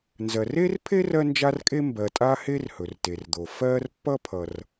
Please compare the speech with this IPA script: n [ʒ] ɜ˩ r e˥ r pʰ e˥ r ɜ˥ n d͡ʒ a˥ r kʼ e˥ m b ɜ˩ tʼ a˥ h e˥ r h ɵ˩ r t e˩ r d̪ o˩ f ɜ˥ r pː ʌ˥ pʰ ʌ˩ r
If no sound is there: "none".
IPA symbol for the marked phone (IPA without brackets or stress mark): z